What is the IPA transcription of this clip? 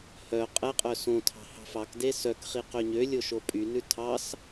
h œ qʼ ɛ qʼ œ s õ tʰ ɑ̤ h ɑ̤ f ɑ k d e s œ k χ i q ø ɲ ø lʲ o ʃ o pʼ y n ʉ tʰ ɑ s

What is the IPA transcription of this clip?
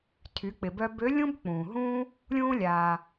tʰ y˩˧ k͡p ɪ˩ b œ˧ b ø˧˥ lʲ ũ˥ b k͡p ũː˩ ɦ ũː˥ | lʲ ũː˧ lʲ aː˩

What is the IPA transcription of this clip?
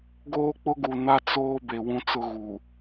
ɡ oː˦ k͡p ʊ˦ ɡ u˨ n a˦ t͡s oː˦ b e˨ w ũ˦ t͡s ʊ˦ ɣ u˨

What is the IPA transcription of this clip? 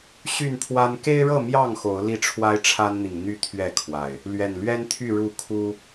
ɕ y˥˨ n pʰ w a˦ n k e˦ ɪ̯ ɻ ɤ˥˨ m j ɑ˥˨ ŋ x o˨˦ ʊ̯ l i˥˨ ʈ͡ʂʰ w a˦ ɪ̯ ʈ͡ʂʰ a˦ n n̪ i˨ ŋ n̪ y˦ t̪ʰ ɥ ɛ˥˨ kʰ w a˨˩ ɪ̯ | l ɥ ɛ˨˩ n l ɥ ɛ˦ n t̪ʰ y˥˨ ɻ u˥˨ kʰ u˦

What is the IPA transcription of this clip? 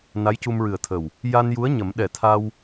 n a˧˥ j c u˧ m ɹ ɨ˨˩ ə̯ t̪ʰ ə˨˩ w | j a˧ n j u˧˥ ə̯ ɲ ə˨˩˦ m ɗ ɛ˨˩ t̪ʰ a˧ w

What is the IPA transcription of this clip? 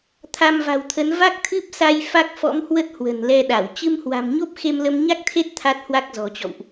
t̪ʰ a˧ m v a̤˨˩ w t̪ʰ ə˨˦ n v a˦˥ k̚ t̪ʰ ɨ˦˥ p̚ s a˧ j f a˦˥ k̚ f ɔ̰˧˥ m h w ə˦˥ t̚ h w ə̤˨˩ n l ɛ˧ ɗ a˧˩ w t͡ɕ ɨ˧ m h w a̤˨˩ m ɲ o˦˥ p̚ x e˧ m l ə˧ m ɲ a˦˥ k̚ t̪ʰ e˦˥ t̚ t̪ʰ a˦˥ t̚ h w a˦˥ k̚ z ɔ̤˨˩ t͡ɕ ɔ̰˧˨ w ʔ

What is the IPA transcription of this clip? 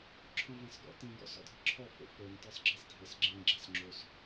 ǁʰ ɔ̃ v ã s ɡ ɔ̰ t ĩ ɡ ɔ̰ s ɔ̰ dʱ ə ǁʰ ɔ f o̰ f ə˞ n t ə˞ sˤ ɡ͡ǁ i sˤ dʱ ə s ɡ͡ǁ ĩ ɡ͡ǁ a s ŋ͡ǁ o s

